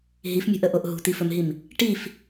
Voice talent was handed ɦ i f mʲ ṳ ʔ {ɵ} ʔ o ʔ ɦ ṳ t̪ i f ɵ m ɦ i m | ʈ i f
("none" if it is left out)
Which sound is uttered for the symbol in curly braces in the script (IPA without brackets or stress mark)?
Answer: ə